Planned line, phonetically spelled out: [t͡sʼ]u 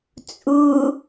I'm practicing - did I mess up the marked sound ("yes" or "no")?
no